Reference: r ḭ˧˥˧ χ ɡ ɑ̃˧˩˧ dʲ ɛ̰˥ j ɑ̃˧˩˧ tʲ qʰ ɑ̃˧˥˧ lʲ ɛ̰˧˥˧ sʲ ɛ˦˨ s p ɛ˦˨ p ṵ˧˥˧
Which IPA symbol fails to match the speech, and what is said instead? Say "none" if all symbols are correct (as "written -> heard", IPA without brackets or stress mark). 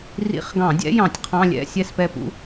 none